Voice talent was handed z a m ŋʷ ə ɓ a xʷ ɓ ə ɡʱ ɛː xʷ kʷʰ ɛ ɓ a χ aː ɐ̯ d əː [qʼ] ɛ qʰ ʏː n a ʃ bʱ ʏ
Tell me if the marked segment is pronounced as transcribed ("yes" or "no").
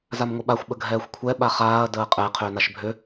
yes